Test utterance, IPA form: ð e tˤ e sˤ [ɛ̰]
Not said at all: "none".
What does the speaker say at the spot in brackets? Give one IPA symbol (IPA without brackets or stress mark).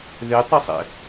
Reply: ɛ̰